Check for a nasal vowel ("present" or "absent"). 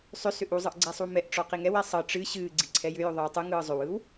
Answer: absent